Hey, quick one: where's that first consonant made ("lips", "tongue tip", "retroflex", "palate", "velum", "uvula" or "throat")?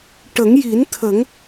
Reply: retroflex